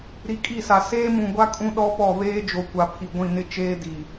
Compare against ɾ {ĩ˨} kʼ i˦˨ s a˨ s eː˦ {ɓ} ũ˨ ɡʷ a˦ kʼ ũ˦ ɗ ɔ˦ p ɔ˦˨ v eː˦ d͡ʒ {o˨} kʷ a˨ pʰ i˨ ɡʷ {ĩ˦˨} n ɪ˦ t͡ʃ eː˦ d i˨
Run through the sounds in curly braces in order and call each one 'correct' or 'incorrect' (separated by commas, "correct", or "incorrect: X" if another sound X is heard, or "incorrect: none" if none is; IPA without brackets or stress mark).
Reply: incorrect: i˨, incorrect: m, correct, correct